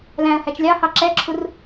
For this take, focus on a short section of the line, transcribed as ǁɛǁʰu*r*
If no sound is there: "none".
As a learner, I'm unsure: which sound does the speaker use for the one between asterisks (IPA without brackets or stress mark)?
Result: r